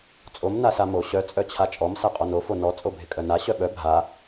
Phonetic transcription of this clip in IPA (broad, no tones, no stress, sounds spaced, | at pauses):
t͡sʼ o m n a s a m o ɕ œ t͡sʼ œ t͡ɕʰ a t͡ʃʼ ɔ m s a qʼ ɔ n o f o n ɔ t͡sʼ o bʱ ɪ kʼ œ n a ɕ œ ɓ œ bʱ a